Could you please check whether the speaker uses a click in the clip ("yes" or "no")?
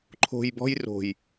yes